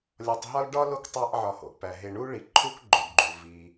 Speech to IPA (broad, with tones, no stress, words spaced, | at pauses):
lʲɒ˨tˤɦɒ˥l ɖɒ˥lo˦k tˤæ˦ʔʕɒ˨ho̰˩ʔpæ˩ ɦe˨ɳu˥ɭi˩ ǃʰu˥kɡ͡ǃo˩dɡ͡ǃu˩ vi˩